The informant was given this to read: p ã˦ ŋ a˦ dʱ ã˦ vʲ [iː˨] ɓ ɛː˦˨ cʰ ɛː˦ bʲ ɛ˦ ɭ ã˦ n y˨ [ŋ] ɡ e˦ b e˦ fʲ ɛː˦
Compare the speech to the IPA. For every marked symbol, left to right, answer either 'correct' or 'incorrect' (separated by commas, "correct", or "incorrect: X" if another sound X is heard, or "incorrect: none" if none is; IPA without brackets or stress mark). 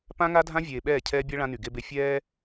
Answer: incorrect: eː˨, incorrect: none